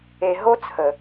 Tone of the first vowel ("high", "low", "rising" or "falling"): low